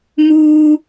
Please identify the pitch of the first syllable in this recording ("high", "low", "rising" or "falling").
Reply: high